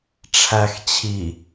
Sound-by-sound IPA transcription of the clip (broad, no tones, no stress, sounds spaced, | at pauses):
ʈ͡ʂʰ æ x t͡ɕʰ i